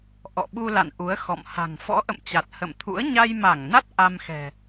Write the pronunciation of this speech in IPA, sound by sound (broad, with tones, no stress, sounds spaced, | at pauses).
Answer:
ʔ ɔ̰˧˨ ɓ u˧ l a̰˧˨ n ʔ u˨˦ ə̯ x ɔ̰˧˨ m h a̤˨˩ ŋ f ɔ̰˧˥ ʔ ə̰˧˨ m t͡ɕ a˨˩ t̚ h ə̰˧˨ m t̪ʰ ṵ˧˥ ə̯ ɲ a˧ j m a˧˩ ŋ n a˦˥ t̚ ʔ a˧ m x ɛ̤˨˩